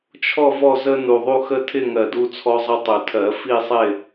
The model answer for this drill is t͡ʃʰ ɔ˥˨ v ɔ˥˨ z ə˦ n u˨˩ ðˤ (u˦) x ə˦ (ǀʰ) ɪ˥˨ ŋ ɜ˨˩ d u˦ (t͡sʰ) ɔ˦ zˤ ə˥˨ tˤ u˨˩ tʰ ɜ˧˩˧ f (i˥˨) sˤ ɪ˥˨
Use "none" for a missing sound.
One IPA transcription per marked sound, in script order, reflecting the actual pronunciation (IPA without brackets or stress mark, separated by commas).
u˦, tʰ, t͡sʰ, i˥˨